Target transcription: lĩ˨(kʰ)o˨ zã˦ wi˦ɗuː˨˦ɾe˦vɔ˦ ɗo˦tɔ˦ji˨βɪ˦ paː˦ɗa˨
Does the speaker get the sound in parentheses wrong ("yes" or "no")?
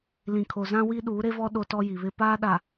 no